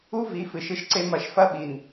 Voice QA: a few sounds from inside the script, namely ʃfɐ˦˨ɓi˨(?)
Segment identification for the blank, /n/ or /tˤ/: n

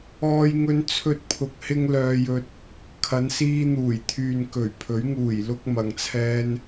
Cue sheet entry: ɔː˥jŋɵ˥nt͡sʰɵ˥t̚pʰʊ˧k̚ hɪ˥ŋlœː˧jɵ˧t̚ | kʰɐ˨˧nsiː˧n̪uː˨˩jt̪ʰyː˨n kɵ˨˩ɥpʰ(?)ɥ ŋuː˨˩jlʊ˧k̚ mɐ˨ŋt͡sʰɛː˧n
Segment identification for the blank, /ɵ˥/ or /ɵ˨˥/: ɵ˨˥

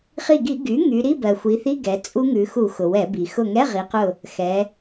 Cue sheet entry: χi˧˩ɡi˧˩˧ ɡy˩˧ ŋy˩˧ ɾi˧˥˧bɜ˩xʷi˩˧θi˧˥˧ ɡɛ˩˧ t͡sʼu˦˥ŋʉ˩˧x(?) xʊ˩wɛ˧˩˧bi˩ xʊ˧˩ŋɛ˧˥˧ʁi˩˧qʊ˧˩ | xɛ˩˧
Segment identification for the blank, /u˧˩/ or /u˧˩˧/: u˧˩˧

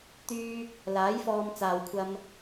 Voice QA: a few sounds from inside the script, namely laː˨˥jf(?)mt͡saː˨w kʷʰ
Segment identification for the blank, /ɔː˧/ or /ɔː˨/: ɔː˧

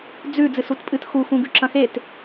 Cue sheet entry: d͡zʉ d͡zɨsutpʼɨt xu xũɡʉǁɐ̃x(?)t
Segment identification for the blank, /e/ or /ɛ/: e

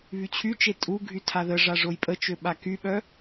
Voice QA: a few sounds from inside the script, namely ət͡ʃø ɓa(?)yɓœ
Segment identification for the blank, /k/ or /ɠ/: k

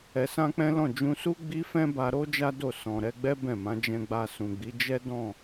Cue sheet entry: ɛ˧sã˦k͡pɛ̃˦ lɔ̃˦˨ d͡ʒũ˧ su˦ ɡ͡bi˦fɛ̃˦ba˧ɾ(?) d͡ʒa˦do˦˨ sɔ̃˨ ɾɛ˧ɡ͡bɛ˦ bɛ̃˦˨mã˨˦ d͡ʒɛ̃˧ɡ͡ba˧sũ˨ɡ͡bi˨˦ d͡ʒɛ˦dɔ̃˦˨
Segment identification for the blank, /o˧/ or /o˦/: o˦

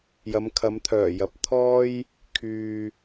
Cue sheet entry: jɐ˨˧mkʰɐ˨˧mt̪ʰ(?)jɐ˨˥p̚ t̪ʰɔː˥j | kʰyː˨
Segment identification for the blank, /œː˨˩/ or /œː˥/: œː˨˩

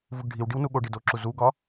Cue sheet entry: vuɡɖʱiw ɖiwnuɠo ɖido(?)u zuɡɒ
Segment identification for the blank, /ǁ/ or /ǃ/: ǁ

